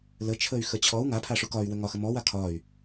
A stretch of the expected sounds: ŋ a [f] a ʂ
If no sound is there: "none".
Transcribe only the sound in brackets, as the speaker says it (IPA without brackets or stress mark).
pʰ